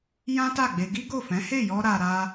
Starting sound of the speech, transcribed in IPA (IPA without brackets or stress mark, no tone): j